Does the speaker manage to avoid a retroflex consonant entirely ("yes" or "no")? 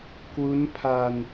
yes